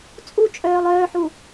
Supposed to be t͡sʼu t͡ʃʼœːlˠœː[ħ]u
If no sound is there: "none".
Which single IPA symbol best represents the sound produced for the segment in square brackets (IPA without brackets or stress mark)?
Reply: ħ